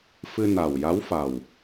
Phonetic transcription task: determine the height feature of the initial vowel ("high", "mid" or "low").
high